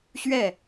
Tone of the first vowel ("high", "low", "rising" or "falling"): falling